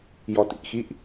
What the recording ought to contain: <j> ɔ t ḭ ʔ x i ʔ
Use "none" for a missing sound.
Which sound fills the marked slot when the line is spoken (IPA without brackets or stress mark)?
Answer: j